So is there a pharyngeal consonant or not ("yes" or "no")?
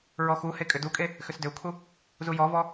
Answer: no